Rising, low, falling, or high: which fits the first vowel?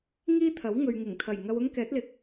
high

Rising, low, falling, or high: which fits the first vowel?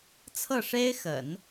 falling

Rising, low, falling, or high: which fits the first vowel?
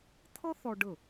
high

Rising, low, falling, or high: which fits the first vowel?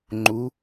rising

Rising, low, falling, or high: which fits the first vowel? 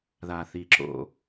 low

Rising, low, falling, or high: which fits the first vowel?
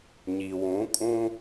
low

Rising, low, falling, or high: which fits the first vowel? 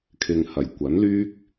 low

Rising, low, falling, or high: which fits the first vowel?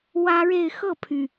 high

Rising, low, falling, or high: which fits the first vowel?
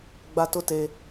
high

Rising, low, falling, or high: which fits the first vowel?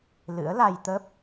rising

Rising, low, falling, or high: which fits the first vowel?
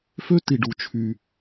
high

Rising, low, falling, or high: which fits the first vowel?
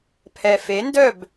low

